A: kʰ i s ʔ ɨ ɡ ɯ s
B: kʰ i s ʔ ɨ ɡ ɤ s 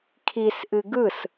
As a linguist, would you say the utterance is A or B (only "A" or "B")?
A